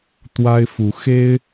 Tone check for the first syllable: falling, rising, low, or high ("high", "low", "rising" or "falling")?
high